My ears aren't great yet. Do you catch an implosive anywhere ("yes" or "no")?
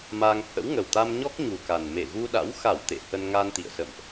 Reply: yes